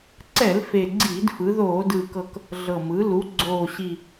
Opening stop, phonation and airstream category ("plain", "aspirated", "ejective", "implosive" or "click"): click